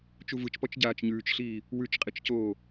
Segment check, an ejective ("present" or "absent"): present